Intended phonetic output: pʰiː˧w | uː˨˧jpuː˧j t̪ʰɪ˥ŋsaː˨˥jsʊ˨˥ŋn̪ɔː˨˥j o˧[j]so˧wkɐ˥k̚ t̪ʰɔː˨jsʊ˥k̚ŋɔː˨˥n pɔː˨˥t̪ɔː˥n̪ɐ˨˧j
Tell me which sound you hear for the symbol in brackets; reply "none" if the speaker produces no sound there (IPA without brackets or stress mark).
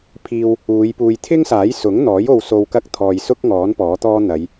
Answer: w